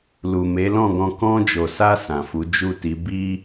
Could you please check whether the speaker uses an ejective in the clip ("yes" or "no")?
no